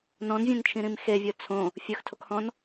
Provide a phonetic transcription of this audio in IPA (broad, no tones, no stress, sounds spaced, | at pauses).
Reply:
n ɔ̃ n vʲ ẽ n t͡ʃʰ ĩ ɾ ĩ m x e vʲ ʊ t͡sʰ õ | fʲ ɵ x tʰ o k h ɔ̃ n